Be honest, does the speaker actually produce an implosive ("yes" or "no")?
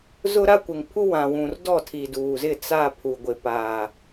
no